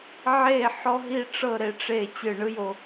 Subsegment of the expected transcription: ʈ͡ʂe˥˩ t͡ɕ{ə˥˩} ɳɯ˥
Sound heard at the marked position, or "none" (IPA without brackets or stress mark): ɯ˥˩